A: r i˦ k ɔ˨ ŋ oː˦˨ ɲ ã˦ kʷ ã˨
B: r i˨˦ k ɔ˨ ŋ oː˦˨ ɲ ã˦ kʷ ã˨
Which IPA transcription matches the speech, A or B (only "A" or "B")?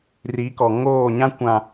B